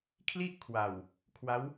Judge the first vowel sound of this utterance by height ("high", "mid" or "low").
high